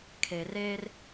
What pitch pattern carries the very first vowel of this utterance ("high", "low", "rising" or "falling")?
low